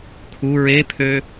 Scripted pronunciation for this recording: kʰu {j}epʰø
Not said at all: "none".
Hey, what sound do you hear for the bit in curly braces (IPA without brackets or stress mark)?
ɹ